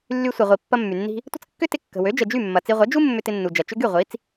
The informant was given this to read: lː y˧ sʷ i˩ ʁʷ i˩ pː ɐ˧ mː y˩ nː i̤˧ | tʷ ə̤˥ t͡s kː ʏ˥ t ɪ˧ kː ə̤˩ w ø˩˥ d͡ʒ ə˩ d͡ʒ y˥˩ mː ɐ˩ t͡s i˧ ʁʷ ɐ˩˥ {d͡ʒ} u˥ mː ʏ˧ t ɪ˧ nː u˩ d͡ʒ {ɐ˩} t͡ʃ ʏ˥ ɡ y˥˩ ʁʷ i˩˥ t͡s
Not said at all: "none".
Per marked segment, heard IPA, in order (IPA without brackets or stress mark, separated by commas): d͡ʒ, ɐ˩